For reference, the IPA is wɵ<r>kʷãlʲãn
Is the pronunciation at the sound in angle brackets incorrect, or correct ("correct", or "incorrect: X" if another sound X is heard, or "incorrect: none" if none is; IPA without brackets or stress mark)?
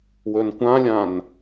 incorrect: n